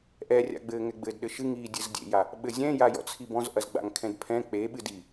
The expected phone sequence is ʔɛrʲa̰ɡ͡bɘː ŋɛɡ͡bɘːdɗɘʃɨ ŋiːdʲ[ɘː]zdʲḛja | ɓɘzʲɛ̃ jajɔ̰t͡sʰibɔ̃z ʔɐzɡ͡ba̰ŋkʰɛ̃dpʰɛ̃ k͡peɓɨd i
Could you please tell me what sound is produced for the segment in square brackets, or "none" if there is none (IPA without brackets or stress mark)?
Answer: ɘ